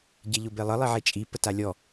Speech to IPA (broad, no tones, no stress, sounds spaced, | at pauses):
ɟ e ʎ ʊ b e lˠ ə lˠ i ʕ e t͡ʃʼ i p ə t a lʲ ɔ